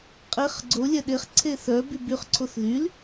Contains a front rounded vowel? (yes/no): yes